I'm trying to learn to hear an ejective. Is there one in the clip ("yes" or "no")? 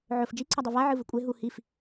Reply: yes